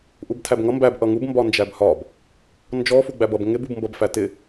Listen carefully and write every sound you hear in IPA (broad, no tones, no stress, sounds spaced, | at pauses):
ʔ u b tʰ æ b ŋ ʌ m b æ b ʔ ʌ ŋ u b m b ɒ n d͡ʒ æ b h ɒ b | n d͡ʒ ɔ f u ɡ͡b æ b ʌ b ŋ ɪ b u b m b ʌ b f æ t ɪ